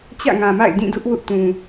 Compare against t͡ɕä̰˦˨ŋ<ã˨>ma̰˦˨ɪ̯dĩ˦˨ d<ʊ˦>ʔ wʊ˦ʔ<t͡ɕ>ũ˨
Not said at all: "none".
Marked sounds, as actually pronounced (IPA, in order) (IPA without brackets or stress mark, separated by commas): ã˨, ʊ˦, t